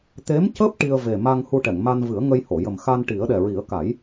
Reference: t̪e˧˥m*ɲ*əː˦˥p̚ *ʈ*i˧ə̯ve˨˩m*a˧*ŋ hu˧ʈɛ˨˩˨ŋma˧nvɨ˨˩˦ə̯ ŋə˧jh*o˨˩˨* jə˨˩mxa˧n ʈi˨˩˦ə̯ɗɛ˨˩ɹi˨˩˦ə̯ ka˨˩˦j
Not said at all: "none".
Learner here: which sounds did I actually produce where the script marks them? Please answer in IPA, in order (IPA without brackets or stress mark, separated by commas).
c, ʈ, a˧, o˨˩˨